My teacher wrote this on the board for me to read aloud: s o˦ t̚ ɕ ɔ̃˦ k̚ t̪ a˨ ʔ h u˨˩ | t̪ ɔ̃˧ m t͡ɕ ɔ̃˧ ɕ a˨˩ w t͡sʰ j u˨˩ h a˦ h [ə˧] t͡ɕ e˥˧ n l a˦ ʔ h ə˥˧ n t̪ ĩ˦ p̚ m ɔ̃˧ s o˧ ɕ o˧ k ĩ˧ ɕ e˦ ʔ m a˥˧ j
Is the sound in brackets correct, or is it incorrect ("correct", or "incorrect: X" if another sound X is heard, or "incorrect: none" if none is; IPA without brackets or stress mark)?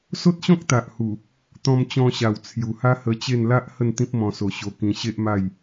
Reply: correct